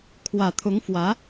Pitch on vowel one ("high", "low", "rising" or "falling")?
low